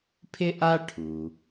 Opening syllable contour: high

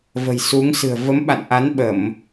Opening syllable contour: low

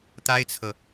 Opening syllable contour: high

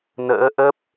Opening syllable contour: rising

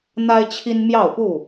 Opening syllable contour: high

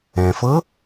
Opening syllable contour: low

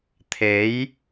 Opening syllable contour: rising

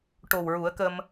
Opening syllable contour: low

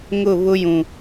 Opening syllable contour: falling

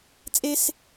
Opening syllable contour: high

